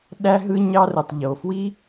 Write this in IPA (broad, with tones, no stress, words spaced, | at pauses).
ɗæ˥ɦɯ˥ ɲɑ˥rɯ˩tˤ ʎo˩fwi˥